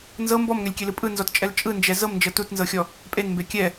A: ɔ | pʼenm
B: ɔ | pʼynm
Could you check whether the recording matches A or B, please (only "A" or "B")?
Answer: A